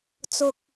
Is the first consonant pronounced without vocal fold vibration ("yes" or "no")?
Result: yes